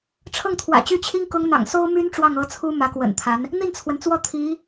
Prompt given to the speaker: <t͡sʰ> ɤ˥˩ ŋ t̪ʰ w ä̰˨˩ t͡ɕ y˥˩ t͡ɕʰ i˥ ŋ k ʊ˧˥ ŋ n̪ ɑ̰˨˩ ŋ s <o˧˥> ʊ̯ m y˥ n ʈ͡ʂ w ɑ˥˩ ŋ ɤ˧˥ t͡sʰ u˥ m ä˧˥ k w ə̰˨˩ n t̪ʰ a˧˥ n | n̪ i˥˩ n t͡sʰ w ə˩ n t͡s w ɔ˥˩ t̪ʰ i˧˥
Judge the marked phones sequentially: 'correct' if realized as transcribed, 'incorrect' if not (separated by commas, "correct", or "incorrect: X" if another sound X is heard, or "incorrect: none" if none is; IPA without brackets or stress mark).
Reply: incorrect: ʈ͡ʂʰ, incorrect: o˥